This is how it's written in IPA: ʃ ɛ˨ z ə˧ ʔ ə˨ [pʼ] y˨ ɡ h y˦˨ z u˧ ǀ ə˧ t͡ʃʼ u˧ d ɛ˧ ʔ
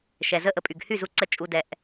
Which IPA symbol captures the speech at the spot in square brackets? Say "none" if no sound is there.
pʼ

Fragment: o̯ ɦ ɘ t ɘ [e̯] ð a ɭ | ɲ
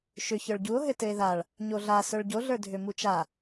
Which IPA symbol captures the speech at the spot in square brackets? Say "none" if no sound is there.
e̯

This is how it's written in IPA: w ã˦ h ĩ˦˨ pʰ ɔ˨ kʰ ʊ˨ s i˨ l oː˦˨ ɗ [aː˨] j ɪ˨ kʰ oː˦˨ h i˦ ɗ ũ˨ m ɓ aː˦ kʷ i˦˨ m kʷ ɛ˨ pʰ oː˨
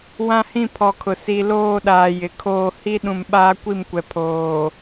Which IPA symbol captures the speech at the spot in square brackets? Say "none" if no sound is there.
aː˨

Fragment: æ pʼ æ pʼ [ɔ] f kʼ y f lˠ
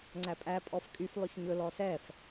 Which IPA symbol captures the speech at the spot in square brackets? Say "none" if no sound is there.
ɔ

